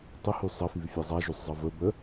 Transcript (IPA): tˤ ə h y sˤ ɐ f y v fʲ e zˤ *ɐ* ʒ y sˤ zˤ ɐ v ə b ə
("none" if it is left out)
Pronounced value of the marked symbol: a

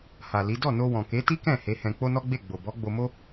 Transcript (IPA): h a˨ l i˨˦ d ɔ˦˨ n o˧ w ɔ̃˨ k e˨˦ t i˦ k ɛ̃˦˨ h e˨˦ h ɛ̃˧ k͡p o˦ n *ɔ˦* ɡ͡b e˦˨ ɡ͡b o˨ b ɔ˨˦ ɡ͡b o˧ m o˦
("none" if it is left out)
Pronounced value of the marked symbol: ɔ˦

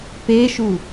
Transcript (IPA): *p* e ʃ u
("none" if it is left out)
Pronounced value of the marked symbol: p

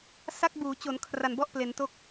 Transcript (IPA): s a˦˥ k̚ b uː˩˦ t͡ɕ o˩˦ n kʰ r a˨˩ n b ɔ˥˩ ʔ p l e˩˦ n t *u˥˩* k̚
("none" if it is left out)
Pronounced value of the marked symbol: o˥˩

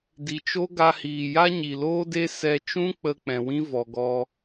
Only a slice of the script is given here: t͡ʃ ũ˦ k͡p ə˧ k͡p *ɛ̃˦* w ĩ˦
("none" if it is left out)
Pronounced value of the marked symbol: ɛ̃˨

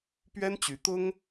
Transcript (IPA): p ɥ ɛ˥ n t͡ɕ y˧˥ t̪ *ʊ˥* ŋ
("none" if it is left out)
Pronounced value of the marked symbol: ʊ˥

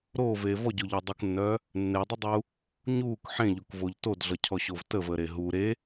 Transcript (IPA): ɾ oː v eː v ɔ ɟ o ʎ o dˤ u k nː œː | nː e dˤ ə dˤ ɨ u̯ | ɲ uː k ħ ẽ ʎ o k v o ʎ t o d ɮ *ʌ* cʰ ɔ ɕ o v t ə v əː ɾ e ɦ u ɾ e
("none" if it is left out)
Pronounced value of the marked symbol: ʌ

